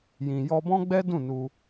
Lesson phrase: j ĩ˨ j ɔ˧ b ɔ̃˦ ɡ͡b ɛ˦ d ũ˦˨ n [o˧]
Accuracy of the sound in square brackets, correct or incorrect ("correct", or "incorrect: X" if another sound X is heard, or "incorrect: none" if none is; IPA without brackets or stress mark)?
incorrect: u˧